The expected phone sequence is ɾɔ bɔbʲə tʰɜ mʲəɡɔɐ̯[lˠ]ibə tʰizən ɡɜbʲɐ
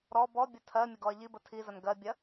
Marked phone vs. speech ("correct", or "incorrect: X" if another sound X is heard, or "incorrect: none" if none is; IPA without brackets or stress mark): incorrect: ʎ